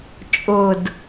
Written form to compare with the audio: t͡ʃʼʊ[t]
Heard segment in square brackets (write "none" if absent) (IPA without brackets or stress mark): d